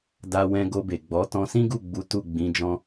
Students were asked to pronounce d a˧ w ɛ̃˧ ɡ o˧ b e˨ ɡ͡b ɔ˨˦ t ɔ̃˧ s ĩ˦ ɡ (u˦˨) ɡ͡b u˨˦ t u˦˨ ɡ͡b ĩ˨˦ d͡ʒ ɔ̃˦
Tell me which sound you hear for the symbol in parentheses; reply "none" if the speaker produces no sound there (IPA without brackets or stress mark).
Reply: u˦˨